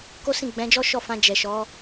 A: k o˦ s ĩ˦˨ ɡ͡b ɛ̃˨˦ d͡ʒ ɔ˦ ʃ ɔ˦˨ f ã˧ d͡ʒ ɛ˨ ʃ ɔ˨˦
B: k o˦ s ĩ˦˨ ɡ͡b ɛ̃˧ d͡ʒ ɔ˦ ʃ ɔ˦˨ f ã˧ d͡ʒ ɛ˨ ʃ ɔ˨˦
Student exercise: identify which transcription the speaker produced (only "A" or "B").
A